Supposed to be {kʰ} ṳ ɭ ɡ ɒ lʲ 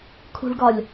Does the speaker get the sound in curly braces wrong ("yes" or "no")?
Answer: no